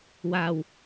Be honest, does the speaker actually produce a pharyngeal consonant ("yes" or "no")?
no